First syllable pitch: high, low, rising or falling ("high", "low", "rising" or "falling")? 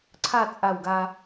falling